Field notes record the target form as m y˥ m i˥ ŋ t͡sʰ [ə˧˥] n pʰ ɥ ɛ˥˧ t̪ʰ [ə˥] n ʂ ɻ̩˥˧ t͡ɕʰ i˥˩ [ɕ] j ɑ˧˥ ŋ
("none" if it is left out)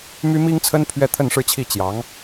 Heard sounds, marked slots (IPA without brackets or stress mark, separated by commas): ə˥, ə˥˧, t͡ɕ